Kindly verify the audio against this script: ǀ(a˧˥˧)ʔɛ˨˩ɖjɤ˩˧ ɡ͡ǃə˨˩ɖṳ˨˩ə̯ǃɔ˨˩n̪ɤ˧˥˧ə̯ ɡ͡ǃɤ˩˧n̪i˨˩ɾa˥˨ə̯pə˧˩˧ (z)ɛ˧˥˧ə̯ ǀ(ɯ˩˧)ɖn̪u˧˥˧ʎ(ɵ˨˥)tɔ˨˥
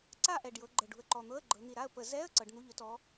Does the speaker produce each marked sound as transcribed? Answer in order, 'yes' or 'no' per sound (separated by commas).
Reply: no, yes, no, yes